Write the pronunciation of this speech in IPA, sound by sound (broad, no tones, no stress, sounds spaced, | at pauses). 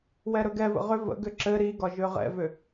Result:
w ɛ ɾ ɵ ɡ ɛ v ə̰ ʁ ʏ v ə̰ ɡ ʏ ǁ ɘ ɾ i ɡ ɒ ʒ ʏ ʁ ɛ̰ v ʏ